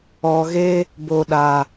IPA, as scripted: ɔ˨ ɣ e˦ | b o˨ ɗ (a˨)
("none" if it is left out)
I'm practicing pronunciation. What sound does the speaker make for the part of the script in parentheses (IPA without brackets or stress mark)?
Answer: a˨